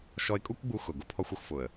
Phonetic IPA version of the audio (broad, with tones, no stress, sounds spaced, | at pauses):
ʃ ɔ˧ ɪ̯ kʼ u˦ kʷ ɡ͡b u˧ x ʊ˨ ɡ ʊ˦ pʰ ɔ˦ xʷ o˦ x f ʊ˨ ə̯